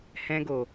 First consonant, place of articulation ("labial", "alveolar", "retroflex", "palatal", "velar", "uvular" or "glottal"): glottal